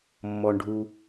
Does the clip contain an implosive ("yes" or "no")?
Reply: no